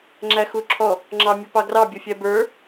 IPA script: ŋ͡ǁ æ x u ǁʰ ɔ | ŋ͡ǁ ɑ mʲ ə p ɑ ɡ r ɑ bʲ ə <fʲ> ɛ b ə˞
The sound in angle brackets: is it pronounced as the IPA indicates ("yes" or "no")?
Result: yes